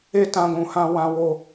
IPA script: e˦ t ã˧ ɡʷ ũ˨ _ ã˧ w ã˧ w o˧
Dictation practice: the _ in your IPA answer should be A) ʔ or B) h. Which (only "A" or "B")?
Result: B